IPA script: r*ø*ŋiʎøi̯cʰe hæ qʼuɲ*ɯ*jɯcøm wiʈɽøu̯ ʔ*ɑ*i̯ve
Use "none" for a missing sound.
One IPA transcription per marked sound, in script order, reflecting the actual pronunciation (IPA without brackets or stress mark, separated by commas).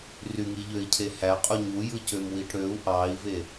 y, u, ɑ